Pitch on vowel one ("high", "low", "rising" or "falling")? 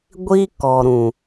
high